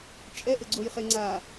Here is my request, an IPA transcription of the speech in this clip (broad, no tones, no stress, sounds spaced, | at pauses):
t͡ʃʼ ɛ ʔ ɘ ɡ͡ǀ o j χ e ŋ͡ǀ a